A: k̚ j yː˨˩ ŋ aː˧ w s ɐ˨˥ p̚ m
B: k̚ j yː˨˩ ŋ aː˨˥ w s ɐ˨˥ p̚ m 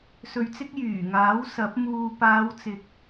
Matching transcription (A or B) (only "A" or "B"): B